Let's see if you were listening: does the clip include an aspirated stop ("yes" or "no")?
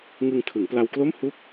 yes